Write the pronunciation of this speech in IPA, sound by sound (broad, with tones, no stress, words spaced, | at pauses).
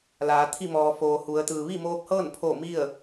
laː˩˧t̪ʰi˥˨mɔː˩foː˩ hu˩˧ə̯t̪ɯː˩ ʋi˥˨moː˧k̚hɤː˥˨n pʰo˧˩ mi˥˨ə̯